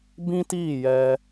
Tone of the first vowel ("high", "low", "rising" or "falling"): high